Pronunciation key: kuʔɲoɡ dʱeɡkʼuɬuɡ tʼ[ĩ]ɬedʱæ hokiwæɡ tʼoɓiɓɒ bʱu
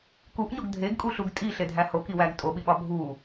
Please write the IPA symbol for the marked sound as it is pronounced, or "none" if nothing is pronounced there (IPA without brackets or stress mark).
i